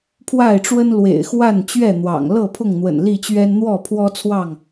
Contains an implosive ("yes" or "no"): no